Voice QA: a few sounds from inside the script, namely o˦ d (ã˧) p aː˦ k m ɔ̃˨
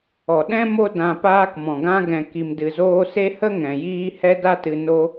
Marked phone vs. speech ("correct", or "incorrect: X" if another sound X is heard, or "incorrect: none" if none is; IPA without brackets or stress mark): correct